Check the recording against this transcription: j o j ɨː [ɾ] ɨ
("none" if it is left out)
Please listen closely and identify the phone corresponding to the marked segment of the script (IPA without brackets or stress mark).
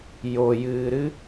ɾ